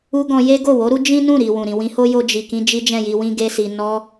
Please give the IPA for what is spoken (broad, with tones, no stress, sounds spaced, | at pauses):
u˦ ɡ ɔ̃˧ j e˦ ɡ o˦˨ w o˨˦ ɾ u˦ d͡ʒ ĩ˦ n ũ˦˨ ɾ i˨ w ũ˨ ɾ ĩ˨ w ĩ˧ h o˦ j o˧ d͡ʒ i˨ k ĩ˧ d͡ʒ i˦ d͡ʒ ɛ̃˦˨ j i˧ w ĩ˧ ɡ e˧ s i˨ n ɔ˧